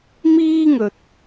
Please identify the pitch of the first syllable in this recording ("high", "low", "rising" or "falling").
high